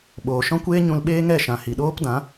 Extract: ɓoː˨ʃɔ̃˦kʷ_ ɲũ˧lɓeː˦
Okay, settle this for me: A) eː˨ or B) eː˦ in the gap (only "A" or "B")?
B